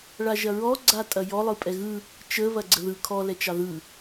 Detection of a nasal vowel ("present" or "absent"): absent